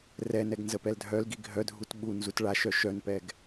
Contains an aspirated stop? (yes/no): no